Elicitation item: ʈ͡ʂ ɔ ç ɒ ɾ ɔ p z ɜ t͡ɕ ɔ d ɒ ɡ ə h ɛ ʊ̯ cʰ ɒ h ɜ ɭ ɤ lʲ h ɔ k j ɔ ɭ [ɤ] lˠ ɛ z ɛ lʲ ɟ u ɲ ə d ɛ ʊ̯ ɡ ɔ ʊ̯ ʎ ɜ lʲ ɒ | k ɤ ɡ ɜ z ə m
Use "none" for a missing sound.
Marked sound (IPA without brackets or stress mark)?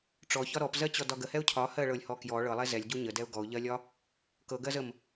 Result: ɤ